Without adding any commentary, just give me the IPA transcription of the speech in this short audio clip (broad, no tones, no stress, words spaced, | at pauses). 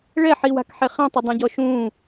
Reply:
ɭɛħiwa̤kħe χɛ̃tˤɪdˤĩɟɔ ʃũ